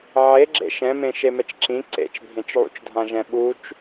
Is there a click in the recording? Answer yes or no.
yes